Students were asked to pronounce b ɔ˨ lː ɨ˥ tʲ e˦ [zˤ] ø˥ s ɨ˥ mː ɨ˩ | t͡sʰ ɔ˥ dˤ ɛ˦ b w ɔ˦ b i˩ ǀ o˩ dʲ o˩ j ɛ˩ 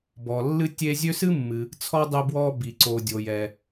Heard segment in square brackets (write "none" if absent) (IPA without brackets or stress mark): zʲ